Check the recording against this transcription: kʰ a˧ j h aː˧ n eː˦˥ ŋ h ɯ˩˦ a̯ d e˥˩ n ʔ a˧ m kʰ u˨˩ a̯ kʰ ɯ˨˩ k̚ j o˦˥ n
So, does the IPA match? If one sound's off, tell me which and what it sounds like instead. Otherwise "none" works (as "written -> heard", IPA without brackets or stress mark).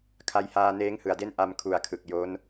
none